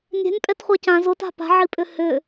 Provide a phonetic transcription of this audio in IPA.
nʲɛ̤nʲpʼɛtχʷa cãz ʊta̤ pa̤ʕipʼʏ hʏ

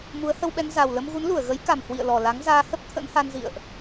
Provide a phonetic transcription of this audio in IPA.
mu˨˦ə̯hə˧wɓɛ˧n za˨˩wlə˧m ɣu˨˦nlu˧˩ə̯ ɣə˨˦jka˨˩m hwḭ˧˨ə̯lɔ˨˩la˨˦ŋzaː˧ hə˦˥p̚ t̪ʰə̰˧˥nha˧nzḭ˧˨ə̯ʔ

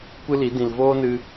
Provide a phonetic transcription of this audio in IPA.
kʷɨ˦li˨˦ dĩ˨lvoː˦nɨ˧

